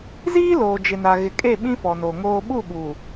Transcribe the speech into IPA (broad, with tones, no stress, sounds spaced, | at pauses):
z iː˦ l oː˨ d͡ʒ ɪ˨ n a˨ ɣ ɪ˨ kʼ e˦˨ ɓ ĩ˦ f ɔ˨ n o˨ ŋ oː˦ ɓ u˦˨ ɓ u˨